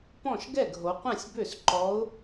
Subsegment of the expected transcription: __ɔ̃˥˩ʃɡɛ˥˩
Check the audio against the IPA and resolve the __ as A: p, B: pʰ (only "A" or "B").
A